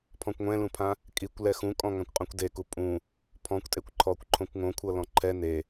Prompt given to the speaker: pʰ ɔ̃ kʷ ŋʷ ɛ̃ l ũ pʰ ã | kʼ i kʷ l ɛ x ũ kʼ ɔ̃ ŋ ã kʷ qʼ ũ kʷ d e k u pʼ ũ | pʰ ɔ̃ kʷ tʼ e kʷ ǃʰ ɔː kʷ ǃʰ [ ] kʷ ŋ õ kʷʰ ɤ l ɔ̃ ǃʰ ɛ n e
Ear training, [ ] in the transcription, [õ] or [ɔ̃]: õ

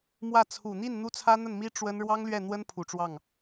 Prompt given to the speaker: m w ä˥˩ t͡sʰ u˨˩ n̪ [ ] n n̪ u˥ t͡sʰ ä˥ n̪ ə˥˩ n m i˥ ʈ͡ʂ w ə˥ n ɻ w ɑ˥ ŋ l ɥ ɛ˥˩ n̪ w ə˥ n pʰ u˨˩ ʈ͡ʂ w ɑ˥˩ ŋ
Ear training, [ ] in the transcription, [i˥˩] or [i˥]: i˥˩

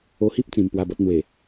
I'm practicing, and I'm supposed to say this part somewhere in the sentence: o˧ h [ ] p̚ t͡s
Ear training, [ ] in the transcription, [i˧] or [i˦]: i˦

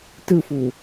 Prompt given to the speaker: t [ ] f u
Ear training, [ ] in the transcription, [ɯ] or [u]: ɯ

